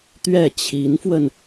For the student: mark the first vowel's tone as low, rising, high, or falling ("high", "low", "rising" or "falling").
falling